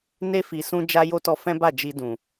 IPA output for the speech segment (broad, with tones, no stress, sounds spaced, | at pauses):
n e˧ f i˨ s ũ˧ d͡ʒ a˧ j o˦ t ɔ˧ f ɛ̃˦ b a˦˨ d͡ʒ i˧ d ũ˨